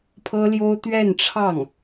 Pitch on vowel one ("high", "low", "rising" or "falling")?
high